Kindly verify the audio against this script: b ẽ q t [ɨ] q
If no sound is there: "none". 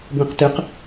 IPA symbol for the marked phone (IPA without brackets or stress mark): ɨ